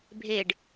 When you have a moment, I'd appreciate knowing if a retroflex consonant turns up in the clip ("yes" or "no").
yes